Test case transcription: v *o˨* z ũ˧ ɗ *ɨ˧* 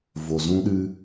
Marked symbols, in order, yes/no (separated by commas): yes, yes